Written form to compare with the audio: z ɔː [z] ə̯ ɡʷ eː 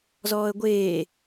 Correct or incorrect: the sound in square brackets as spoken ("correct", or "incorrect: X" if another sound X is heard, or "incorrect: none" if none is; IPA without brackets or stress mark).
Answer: incorrect: none